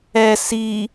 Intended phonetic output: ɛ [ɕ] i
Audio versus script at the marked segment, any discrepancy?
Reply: yes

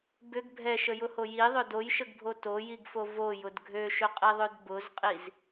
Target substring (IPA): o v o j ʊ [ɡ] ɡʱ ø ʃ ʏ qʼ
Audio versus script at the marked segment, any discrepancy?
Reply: yes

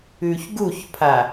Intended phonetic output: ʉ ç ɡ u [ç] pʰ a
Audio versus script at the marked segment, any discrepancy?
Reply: no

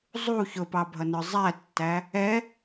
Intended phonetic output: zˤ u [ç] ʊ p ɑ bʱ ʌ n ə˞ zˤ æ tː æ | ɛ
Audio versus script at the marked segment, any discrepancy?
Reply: no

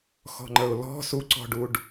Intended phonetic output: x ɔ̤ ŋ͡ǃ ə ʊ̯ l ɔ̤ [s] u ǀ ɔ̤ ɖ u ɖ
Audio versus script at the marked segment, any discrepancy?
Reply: no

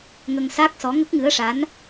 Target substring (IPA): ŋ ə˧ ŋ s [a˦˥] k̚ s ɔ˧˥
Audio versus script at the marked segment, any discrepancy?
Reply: no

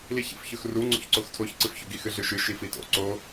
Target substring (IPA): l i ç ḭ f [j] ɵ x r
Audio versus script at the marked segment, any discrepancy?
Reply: yes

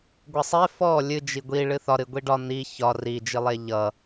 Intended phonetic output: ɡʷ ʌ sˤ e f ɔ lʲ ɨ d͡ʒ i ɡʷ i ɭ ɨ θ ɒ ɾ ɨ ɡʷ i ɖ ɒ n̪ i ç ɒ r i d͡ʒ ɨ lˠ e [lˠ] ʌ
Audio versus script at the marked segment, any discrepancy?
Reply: yes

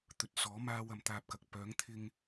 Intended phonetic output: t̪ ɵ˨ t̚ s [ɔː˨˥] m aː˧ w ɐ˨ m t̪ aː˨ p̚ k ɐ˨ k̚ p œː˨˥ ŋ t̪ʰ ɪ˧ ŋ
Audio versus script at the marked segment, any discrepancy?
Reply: no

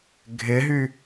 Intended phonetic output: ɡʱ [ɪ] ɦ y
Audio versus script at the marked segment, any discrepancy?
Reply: no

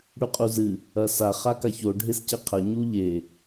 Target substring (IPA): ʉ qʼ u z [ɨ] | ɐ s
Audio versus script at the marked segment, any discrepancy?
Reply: no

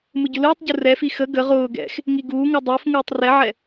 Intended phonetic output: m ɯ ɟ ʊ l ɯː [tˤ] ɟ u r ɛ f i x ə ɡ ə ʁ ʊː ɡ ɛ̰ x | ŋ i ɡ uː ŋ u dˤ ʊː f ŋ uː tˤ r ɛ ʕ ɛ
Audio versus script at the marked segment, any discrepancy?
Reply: no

